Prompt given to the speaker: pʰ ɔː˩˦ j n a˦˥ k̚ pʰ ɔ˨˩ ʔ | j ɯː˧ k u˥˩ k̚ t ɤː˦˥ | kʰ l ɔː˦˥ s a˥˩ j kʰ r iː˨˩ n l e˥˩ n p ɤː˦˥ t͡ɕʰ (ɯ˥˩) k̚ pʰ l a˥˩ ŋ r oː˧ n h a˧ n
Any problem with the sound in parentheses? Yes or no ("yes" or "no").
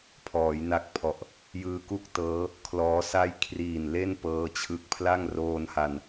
yes